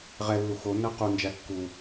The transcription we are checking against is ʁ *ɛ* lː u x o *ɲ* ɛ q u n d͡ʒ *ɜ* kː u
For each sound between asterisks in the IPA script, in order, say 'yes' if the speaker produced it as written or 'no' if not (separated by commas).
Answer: yes, no, no